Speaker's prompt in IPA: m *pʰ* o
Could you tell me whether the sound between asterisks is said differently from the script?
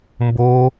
yes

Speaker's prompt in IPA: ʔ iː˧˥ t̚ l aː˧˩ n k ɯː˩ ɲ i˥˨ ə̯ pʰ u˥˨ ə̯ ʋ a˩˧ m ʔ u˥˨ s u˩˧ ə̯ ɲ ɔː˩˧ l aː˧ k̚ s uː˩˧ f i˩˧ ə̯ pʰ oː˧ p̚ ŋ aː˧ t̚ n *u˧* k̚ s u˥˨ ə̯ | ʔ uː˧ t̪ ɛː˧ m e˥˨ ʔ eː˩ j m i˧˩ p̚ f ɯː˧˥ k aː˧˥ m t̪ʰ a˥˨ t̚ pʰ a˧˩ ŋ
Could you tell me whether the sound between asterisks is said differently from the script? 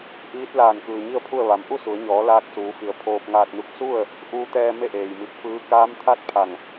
no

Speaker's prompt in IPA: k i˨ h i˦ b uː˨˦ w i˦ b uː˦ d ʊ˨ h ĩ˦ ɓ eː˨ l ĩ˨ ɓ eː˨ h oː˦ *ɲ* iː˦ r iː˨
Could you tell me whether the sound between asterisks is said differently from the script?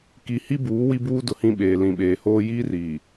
yes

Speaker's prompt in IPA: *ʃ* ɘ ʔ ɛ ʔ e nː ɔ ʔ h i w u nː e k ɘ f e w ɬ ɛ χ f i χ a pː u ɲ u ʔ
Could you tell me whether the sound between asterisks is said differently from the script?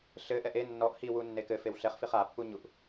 yes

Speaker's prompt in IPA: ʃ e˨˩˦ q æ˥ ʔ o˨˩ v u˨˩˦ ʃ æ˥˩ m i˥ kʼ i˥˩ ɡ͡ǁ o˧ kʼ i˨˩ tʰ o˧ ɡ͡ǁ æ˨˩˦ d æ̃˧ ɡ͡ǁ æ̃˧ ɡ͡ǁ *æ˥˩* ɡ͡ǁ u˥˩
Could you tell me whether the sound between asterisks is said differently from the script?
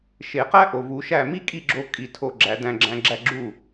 no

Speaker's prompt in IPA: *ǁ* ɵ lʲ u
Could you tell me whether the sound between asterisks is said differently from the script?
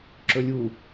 no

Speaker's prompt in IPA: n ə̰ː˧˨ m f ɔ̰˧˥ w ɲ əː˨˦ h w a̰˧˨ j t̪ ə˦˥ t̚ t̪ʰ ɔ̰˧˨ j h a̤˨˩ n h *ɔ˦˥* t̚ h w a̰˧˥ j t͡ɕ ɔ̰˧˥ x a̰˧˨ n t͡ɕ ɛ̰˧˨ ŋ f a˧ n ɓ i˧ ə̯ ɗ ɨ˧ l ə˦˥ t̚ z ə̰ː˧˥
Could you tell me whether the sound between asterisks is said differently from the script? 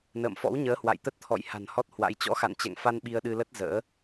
no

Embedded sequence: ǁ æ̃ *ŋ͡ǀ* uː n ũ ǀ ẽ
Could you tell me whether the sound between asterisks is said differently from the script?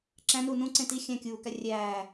yes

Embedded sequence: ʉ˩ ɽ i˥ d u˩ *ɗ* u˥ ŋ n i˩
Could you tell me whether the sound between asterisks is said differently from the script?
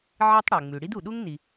no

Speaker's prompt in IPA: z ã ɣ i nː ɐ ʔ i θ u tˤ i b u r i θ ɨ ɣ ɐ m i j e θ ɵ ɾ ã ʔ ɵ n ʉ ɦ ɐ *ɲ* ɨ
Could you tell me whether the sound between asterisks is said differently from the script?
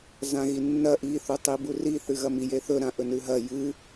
yes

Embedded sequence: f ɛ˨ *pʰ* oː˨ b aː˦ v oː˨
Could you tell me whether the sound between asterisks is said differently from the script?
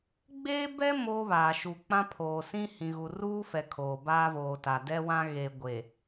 yes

